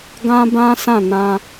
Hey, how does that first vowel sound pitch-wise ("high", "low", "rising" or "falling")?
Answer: high